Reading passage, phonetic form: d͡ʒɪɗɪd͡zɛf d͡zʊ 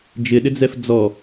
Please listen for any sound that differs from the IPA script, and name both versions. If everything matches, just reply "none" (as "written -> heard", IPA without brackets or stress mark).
ʊ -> ɔ